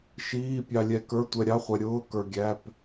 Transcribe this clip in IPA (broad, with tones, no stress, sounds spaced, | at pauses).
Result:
ʃ iː˧˥˧ pʲ ɑ˧ lʲ ɛ˧ k ə˞˧˥˧ tʷ ɛ˧ ɾʲ ɑ˧˥˧ χʷ ɛ˧ ɾʲ ʊː˧˥˧ k ə˞˧ ɡʲ æ˧˥˧ p